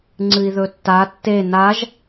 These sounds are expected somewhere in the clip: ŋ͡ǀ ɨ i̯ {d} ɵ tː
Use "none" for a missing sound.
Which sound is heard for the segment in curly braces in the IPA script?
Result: ð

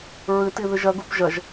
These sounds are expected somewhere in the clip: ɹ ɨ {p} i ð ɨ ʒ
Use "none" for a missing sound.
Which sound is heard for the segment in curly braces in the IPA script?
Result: t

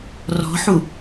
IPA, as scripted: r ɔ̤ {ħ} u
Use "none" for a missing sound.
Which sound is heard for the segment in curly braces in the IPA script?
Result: ħ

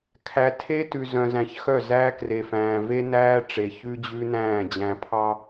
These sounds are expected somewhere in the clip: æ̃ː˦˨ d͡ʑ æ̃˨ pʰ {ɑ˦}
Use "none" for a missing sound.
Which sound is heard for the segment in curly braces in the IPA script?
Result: ɑ˦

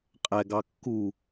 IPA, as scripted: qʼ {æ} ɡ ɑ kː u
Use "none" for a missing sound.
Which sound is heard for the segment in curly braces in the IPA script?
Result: æ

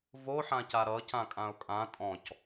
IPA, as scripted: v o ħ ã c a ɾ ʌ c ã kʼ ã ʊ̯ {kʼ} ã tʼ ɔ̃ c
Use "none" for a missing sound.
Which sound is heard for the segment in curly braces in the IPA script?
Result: kʼ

